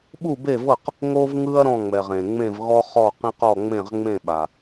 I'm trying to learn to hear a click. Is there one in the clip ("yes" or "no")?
no